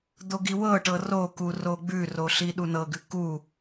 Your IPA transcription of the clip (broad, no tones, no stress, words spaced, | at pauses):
d̪oɡiwɤʈɤ roku roɡ͡bʉro ɬiɗunɤɡʉ ku